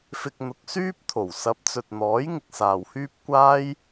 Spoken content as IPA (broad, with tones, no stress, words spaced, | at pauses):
fɪ˧k̚ n̪ʊ˨˥k̚syː˥p̚ t̪ʰo˨˩wsɐ˨˥p̚t͡sɵ˨t̚n̪ɔː˨˥j ŋɪ˧k̚saː˨whyː˥p̚ kʷaː˥j